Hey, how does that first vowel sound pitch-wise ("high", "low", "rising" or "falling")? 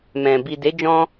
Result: low